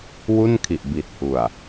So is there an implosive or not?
no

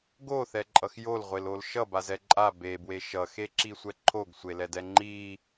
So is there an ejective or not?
yes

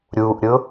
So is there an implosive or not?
no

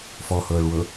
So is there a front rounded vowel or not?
no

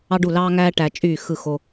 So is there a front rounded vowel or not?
yes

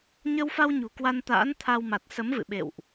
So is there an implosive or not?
yes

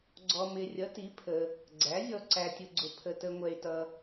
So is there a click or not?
yes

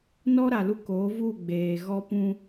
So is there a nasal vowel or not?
yes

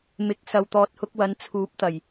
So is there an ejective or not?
no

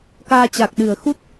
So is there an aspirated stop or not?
no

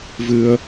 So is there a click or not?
no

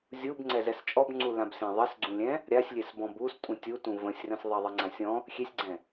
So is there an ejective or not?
yes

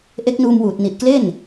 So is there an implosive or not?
no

